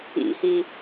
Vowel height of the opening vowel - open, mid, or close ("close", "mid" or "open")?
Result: close